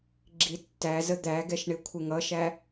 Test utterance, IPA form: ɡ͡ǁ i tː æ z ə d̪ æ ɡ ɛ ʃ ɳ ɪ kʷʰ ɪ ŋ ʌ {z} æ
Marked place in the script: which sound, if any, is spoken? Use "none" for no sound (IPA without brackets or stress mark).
ʃ